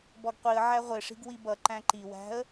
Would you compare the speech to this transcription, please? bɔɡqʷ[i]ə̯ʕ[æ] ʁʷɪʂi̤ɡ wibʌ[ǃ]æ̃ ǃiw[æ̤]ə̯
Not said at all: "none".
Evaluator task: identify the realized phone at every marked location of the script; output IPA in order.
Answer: i, æ, ǃ, æ̤

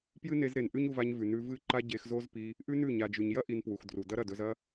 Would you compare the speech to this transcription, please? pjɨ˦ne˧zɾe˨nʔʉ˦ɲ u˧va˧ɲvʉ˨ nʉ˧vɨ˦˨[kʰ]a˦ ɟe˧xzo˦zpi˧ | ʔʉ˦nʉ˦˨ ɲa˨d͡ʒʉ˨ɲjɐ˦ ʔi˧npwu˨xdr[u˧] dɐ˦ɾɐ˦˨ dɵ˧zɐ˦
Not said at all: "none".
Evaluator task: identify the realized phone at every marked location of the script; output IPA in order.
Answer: ǃ, u˨

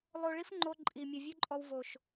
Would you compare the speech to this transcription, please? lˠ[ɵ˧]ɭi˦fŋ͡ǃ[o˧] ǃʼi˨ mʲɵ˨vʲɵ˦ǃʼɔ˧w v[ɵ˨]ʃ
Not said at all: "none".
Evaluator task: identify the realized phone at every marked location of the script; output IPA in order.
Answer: o˧, o˧, o˨

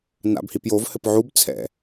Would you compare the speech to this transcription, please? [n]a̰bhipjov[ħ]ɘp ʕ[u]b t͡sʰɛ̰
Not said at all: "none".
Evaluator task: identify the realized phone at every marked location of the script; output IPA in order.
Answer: n, h, u

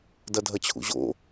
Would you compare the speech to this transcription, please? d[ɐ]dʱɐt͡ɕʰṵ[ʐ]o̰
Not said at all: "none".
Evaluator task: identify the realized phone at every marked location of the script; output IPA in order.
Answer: ɐ, ʑ

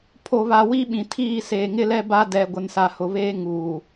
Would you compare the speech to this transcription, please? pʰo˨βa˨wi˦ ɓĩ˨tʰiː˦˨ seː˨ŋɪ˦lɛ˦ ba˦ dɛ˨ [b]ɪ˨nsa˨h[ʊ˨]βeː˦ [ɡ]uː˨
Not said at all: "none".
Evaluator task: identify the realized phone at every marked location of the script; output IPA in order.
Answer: ɡʷ, ʊ˨, ŋ

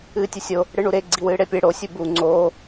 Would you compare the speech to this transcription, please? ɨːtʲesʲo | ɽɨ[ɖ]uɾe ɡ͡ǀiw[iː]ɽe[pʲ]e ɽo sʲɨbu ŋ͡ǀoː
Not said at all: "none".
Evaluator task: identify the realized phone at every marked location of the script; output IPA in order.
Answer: ɳ, ɨː, pʲ

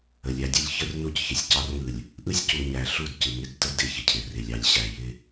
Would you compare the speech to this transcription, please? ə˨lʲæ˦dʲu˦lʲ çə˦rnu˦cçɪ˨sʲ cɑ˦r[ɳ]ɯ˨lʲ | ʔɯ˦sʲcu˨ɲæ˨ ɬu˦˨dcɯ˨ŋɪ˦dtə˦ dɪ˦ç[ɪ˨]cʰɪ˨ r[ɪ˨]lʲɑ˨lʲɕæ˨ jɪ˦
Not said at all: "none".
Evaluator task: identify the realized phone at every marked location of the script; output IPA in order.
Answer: ŋ, ɪ˨, ɪ˨

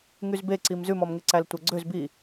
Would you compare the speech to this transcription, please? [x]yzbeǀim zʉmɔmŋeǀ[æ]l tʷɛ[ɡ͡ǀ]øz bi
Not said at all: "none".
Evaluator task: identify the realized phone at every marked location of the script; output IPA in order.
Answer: ŋ, æ, ɡ͡ǀ

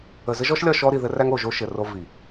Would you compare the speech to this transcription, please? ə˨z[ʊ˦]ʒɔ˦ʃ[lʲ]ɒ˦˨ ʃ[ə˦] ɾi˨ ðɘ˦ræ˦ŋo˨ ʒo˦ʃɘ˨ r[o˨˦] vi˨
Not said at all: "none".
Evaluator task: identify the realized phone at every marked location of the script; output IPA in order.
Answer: ə˦, lʲ, ɔ˦, o˦

